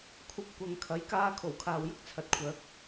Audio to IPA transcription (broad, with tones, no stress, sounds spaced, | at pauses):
kʷʰ ɐ˧ p̚ kʷ ɐ˨ ŋ kʰ ɐ˨˥ j k aː˧ kʰ o˨˩ w kʰ aː˨ w j ʊ˥ k̚ t͡sʰ ɐ˨ t̚ kʷʰ œː˨˥ k̚